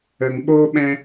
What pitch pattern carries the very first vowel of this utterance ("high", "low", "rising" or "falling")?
low